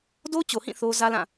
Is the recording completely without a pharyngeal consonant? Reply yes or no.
yes